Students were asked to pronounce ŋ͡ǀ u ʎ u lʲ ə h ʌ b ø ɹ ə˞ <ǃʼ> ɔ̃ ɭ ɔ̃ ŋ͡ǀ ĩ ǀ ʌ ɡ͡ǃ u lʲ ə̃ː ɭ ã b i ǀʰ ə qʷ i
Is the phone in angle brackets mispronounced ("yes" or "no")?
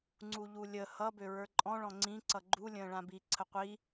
no